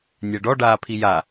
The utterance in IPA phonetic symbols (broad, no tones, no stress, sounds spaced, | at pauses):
nʲ ɜ ɖ ɔ ɖ aː pʰ i j a